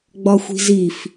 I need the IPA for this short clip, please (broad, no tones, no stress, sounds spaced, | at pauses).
ɡ͡b ɒ xʷ i̤ z i f